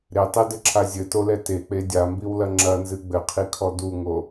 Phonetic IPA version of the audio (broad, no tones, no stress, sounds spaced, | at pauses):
ɾ e tˤ e d ɘ ǁʰ a zʲ ɘ t o l ɛ t e k͡p e dʲ a m b i w l ɐ ŋ͡ǁ ɐ n z ɨ ɡ͡b ɘ qʰ i kʰ ɔ d u ŋ o